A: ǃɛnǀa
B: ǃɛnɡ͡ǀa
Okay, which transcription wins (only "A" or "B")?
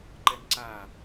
A